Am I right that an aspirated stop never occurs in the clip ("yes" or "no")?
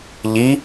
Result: yes